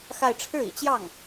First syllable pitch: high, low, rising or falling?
falling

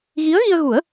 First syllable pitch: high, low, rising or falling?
rising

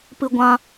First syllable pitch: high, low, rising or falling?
high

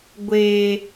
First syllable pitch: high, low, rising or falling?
low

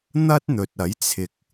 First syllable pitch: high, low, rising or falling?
high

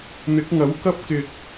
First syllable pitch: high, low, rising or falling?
rising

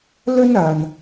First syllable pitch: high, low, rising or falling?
high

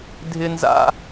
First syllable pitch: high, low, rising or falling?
high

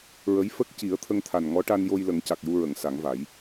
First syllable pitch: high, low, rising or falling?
rising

